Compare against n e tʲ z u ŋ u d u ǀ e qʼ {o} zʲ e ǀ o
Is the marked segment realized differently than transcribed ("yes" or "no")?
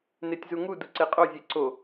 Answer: no